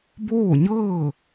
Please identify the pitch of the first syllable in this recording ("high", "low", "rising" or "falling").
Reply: falling